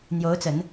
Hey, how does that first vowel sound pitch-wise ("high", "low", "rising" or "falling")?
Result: rising